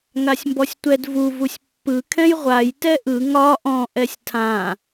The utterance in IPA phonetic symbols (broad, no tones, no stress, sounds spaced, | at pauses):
ŋ a sʲ m b ɔ sʲ tʷ ɛ d v u v u sʲ pː ɯ kʰ ɛ̃ j ʁʷ a j t ɛ ʔ ɯ ŋ ɒ ʔ ɔ̃ ʔ ɛ sʲ tʰ ã